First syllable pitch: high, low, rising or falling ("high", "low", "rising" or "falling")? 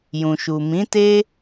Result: low